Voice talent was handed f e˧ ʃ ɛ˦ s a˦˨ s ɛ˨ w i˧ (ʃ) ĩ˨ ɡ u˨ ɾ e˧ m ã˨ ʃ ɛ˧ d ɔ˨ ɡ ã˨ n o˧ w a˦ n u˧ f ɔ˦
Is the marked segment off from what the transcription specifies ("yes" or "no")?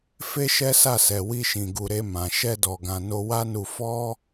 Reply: no